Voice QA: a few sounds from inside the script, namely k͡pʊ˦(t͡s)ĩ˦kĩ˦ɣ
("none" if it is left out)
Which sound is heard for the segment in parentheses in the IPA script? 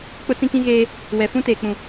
t͡s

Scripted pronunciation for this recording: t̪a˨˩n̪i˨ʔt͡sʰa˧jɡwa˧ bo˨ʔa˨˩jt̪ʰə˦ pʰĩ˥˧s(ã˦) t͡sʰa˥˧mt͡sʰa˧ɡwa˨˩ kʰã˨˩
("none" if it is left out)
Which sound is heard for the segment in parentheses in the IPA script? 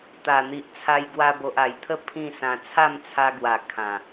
ã˧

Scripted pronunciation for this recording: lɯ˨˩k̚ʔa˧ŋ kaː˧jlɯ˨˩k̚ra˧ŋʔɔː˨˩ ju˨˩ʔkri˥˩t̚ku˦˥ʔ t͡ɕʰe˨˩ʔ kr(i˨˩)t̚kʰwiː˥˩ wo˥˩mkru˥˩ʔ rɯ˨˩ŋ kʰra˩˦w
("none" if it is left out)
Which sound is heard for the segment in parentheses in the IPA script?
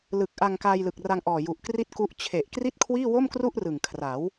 i˥˩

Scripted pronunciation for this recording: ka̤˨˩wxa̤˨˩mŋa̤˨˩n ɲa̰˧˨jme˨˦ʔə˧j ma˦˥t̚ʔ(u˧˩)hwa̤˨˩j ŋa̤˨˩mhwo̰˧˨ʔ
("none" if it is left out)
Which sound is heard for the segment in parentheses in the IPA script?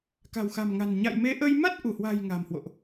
u˧˩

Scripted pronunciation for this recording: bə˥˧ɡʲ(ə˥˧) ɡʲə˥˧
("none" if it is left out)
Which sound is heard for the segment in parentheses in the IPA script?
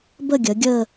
ə˩˧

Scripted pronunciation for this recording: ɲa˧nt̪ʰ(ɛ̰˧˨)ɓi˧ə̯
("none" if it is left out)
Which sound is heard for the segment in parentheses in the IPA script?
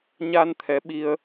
ɛ˨˦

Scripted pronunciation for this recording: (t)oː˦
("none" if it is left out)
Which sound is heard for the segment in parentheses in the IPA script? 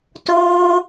t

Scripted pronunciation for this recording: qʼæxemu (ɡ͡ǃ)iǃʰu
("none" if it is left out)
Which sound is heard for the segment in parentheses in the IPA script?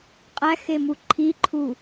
ǃʰ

